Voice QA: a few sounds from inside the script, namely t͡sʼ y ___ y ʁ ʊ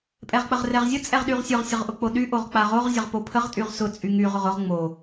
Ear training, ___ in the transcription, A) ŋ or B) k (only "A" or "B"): A